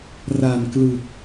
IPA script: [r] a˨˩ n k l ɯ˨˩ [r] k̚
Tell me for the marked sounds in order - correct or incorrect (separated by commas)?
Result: correct, incorrect